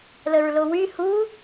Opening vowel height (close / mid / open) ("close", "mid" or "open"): mid